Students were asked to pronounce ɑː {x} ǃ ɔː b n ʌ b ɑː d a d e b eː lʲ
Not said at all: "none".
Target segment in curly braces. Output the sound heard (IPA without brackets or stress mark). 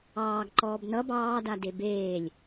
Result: ɡ